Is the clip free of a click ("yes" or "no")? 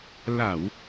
yes